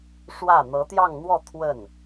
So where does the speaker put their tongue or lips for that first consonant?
retroflex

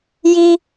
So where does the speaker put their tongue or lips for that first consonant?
palate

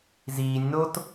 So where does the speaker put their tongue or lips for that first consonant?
tongue tip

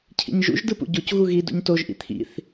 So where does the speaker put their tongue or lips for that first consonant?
palate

